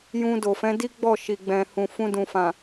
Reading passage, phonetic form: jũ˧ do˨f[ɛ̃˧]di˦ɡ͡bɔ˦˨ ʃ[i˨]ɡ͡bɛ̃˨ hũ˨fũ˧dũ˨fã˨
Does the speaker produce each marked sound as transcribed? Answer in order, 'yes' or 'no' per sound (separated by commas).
no, yes